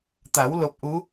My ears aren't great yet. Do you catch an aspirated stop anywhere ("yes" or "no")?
no